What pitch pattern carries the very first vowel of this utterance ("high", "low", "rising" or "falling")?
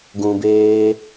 low